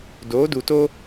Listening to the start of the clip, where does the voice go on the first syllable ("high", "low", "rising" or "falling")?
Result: rising